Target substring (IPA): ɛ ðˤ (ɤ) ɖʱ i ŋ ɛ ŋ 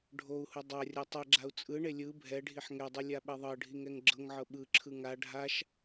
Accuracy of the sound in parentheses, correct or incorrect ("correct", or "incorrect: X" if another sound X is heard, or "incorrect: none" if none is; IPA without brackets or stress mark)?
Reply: correct